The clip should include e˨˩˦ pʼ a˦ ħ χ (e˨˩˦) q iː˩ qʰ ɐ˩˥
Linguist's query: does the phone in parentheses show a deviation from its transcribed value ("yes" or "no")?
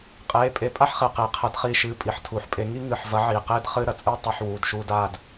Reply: yes